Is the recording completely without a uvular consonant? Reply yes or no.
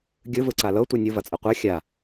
no